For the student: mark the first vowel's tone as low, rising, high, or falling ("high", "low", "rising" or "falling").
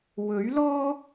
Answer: rising